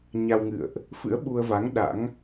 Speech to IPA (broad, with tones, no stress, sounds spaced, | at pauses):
ɲ a˧ w ŋ ɨ̰˧˨ ə̯ ʔ | f ɨ̰˧˥ ə̯ ɓ u˧ ə̯ v a˨˦ ŋ ɗ a̰˧˥ ŋ